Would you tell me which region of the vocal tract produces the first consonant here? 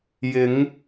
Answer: palate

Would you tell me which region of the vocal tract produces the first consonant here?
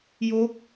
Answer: palate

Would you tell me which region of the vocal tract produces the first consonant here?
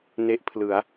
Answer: tongue tip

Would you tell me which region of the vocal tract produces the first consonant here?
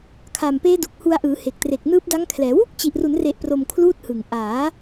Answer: velum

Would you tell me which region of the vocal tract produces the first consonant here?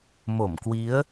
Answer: lips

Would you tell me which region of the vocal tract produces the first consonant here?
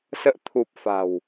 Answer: tongue tip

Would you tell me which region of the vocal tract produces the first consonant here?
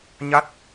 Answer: palate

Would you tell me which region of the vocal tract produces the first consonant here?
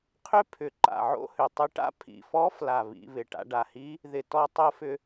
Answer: uvula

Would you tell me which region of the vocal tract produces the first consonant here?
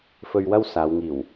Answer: lips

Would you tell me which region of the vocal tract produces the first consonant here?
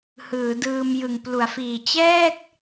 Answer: throat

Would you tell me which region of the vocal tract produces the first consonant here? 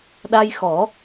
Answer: tongue tip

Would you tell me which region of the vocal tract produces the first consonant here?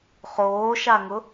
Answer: uvula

